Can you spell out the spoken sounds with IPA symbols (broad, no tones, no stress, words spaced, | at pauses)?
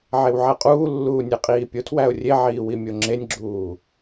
ʕewʕæqʼuːlːuː nʲeqʼiːpʲotʰwæʊ̯ rʲeʕiː wimʲoŋ͡ǁenʲɡ͡ǁuː